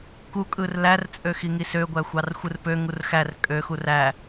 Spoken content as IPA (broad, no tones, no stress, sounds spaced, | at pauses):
k u kʼ ɯ r l æ r t͡sʼ ø x i ŋ i s ø ɡʷ æ xʷ ɑ r xʷ ɯ r p ø ŋ u r x æ r kʼ ø x u r æ